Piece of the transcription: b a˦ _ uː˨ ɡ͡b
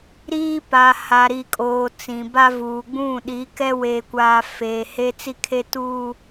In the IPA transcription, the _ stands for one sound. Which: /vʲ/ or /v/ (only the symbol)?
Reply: v